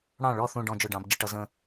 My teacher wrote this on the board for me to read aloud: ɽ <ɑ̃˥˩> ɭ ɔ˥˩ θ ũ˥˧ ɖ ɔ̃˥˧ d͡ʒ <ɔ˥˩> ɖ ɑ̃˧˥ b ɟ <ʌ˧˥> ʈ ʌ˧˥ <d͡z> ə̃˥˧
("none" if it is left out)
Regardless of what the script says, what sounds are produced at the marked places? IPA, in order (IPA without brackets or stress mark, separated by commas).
ɑ̃˥˩, ʊ˥˩, ʌ˧˥, z